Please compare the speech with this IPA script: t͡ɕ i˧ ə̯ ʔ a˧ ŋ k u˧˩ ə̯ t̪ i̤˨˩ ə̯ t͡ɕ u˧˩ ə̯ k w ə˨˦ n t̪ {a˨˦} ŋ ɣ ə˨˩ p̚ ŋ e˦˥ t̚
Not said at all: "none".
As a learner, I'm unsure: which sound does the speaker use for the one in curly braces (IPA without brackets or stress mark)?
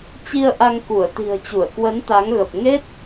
a˨˦